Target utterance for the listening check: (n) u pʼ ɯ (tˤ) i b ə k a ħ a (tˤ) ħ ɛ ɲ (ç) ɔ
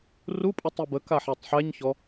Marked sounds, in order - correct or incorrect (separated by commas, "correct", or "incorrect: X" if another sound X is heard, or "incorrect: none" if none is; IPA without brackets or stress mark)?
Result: incorrect: r, correct, correct, correct